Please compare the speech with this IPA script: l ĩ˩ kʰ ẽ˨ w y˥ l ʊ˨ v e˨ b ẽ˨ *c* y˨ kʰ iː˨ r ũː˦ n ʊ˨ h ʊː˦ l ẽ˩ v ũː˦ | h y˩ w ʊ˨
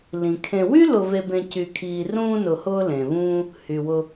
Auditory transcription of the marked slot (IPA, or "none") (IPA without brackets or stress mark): c